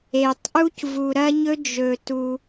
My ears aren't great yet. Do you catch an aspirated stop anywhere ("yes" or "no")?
no